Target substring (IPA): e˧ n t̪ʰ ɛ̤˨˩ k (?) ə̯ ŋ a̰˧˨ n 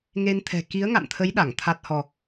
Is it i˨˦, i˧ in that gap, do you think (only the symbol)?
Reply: i˨˦